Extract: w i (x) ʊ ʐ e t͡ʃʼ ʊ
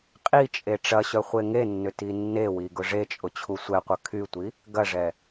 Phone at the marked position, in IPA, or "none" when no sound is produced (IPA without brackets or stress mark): ɡ